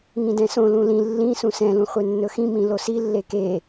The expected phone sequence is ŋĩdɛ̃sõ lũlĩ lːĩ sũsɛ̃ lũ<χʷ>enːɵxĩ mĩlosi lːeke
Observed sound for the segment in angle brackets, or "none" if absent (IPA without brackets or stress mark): χʷ